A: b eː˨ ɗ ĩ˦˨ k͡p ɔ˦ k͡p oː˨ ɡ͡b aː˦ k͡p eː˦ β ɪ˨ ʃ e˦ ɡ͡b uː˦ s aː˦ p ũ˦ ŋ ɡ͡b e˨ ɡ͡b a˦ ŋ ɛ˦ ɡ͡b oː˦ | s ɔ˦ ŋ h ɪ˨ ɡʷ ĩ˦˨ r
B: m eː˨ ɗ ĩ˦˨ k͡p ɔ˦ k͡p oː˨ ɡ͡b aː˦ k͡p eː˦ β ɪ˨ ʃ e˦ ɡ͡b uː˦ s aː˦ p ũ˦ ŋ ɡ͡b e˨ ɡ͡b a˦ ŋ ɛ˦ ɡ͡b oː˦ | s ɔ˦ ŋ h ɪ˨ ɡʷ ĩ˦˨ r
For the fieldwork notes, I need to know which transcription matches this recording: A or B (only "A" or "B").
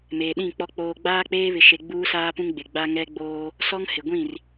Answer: B